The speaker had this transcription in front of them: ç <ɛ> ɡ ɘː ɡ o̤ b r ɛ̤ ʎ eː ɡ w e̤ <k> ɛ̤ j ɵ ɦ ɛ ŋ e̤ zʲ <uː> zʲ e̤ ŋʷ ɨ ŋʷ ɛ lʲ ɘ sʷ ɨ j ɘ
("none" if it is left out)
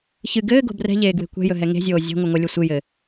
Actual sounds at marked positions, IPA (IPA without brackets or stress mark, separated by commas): ɨ, kʷ, oː